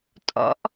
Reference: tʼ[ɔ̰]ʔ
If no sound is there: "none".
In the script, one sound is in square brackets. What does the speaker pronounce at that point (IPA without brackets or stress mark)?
ɔ̰